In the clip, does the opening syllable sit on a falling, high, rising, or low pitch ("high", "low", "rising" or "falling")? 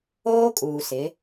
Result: high